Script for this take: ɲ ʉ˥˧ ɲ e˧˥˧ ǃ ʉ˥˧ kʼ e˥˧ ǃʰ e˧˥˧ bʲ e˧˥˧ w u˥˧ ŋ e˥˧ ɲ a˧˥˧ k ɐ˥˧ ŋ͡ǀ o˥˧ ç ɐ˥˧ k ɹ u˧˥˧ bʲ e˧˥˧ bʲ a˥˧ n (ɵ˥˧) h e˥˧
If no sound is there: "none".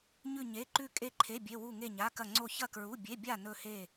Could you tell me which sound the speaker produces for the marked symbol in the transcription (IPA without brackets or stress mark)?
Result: ɵ˥˧